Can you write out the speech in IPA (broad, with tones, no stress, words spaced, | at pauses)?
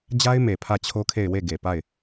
d͡ʑa˦ɪ̯me˨ pʰä˦˨t͡ɕʰo˦kʰe˦˨ɪ̯ we˦˨ɡe˨pa˦˨ɪ̯